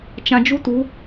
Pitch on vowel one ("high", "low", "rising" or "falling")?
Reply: low